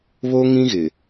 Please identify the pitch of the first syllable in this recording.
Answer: high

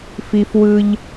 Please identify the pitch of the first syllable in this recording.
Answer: low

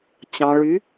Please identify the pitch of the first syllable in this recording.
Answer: low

